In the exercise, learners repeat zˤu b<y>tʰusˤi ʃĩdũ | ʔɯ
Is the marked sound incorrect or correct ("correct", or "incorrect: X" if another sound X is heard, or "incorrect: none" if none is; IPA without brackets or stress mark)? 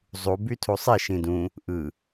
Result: correct